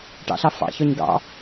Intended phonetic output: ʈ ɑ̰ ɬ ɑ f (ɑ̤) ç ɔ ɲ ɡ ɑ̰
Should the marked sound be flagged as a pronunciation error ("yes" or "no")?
yes